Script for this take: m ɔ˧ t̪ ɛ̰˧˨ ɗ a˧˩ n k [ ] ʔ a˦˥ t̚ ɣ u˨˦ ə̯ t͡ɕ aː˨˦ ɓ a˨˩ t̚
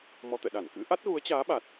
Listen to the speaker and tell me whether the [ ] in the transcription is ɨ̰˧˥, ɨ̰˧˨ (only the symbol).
ɨ̰˧˥